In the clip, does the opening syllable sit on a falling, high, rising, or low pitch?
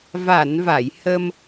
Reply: low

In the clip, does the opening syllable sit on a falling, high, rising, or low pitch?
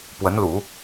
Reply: rising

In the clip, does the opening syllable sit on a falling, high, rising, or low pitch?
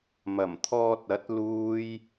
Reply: low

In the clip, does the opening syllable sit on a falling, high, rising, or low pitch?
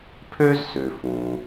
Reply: high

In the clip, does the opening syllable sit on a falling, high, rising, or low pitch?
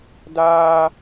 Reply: high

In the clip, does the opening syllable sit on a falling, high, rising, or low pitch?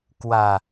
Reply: low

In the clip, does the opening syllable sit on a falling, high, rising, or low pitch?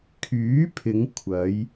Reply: rising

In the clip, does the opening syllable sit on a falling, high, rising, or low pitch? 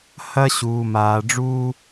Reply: high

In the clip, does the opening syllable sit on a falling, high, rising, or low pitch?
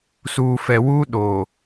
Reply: low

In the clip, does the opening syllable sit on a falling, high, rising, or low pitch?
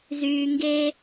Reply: low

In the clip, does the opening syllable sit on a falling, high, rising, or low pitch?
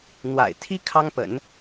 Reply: low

